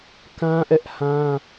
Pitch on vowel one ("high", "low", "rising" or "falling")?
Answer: high